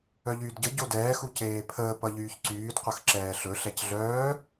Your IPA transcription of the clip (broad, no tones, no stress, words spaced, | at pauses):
œʎyːdɟə ɟodɛː xuceːpʰəː pʌʎyːçǀyːd qʷəxǁɛːɬɵ ɬɛcɮœː